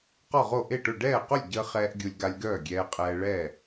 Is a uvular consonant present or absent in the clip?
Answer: present